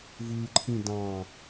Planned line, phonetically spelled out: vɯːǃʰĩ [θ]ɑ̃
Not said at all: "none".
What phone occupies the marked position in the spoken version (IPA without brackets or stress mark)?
d